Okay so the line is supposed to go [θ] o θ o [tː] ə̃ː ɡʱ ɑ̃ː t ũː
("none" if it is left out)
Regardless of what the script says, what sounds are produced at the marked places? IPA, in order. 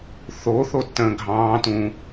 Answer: θ, tː

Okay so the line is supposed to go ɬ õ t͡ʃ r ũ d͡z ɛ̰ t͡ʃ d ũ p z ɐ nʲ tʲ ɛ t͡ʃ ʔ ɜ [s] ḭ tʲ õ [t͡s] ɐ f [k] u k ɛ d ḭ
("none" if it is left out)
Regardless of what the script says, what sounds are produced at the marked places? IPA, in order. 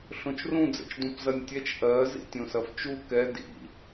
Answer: z, s, t͡ʃ

